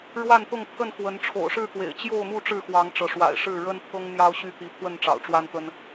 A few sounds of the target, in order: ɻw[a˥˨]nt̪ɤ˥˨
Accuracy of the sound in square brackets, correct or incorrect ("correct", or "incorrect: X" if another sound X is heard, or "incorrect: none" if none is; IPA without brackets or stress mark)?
correct